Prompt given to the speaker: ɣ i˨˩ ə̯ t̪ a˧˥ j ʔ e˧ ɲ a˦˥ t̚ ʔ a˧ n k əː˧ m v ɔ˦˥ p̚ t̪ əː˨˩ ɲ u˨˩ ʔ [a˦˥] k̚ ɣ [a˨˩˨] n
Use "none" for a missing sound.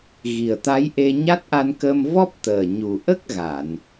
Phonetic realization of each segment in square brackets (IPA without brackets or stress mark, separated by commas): ə˦˥, a˨˩˨